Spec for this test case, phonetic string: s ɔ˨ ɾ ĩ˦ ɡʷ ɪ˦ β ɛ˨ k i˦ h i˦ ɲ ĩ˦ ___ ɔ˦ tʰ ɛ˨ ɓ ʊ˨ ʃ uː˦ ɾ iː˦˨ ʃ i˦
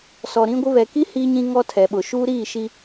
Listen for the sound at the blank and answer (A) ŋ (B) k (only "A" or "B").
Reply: A